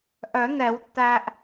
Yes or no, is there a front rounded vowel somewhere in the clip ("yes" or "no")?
yes